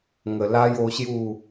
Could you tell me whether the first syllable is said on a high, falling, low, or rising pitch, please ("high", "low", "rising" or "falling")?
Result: low